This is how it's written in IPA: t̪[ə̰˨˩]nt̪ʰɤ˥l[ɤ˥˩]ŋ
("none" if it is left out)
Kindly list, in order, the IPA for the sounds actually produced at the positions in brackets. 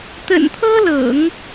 ə̰˨˩, ɤ̰˨˩˦

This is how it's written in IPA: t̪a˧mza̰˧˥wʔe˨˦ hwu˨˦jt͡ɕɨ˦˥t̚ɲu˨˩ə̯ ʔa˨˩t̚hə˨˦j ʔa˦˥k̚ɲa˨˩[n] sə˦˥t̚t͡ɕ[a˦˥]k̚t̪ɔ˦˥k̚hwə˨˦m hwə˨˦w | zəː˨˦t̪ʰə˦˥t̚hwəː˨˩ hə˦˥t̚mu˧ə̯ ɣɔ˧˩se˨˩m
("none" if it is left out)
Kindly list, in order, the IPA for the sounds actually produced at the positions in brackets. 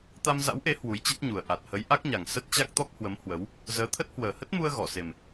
ŋ, a˦˥

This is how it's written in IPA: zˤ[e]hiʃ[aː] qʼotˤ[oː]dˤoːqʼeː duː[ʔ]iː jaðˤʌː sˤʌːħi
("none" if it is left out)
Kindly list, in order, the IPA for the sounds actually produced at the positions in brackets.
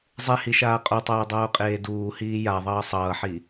e, aː, oː, h

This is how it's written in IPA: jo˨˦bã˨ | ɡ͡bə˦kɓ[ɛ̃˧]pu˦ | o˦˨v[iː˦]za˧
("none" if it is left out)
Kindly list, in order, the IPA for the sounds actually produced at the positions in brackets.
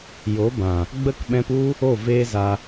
ɛ̃˧, eː˦

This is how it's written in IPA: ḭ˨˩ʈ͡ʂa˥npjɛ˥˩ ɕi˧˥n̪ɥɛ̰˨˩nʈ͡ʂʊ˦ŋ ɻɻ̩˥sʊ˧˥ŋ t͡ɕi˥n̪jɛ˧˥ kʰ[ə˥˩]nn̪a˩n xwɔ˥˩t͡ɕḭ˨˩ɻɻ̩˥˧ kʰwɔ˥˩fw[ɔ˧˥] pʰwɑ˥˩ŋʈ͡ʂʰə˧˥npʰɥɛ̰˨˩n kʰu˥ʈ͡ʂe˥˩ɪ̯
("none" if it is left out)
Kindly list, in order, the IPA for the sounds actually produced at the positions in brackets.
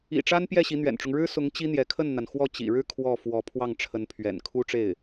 ə˥˩, ɔ˧˥

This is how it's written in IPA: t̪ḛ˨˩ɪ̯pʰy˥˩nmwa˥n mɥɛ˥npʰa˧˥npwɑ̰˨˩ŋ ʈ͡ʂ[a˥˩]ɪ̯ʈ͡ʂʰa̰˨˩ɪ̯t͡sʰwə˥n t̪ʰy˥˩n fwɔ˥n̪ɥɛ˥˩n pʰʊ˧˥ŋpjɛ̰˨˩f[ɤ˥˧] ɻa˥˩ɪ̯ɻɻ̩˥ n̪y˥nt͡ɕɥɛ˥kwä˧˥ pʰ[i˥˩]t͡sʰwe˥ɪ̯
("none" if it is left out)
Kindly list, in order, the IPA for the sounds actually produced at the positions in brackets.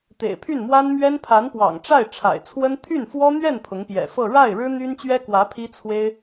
a˥˩, ɤ˥˧, i˥

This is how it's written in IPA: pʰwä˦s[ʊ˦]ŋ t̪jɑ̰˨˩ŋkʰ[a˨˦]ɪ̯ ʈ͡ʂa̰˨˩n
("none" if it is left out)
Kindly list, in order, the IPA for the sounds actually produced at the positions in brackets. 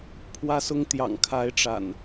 ʊ˦, a˨˦

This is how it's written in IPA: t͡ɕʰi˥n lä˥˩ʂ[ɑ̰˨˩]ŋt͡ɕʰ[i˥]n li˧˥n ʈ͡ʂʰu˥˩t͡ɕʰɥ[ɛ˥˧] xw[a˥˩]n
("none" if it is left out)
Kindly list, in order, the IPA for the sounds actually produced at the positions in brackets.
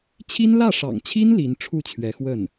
ɑ̰˨˩, i˥, ɛ˧˥, ə˥˩

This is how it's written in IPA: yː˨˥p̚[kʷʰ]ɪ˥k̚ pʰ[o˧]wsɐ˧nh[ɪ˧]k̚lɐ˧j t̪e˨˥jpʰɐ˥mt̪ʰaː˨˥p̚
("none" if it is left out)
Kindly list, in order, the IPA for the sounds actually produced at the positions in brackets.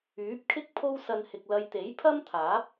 kʰ, o˥, ɪ˨

